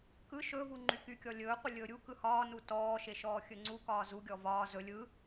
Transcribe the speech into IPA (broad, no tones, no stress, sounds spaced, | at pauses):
k ɯ ʃ ɵ v u ŋ͡ǃ y k y kʲ ɔ lʲ ɵː qʷ ɯ lʲ ɵː ɾʲ u k ɯ h ɒː n u t ɔː ʃ e ʃ ɔː xʲ ɵ ŋ͡ǀ u k ɒː z u ɡʲ ɔ v ɒː z ɵ lʲ ɯ